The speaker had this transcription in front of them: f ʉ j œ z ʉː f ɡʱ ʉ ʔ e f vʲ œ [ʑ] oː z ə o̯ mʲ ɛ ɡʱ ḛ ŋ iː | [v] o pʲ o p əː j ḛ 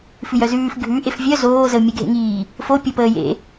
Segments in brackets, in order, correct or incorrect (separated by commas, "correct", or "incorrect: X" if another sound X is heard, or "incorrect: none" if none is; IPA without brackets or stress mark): incorrect: z, incorrect: f